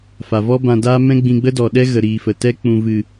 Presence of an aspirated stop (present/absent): absent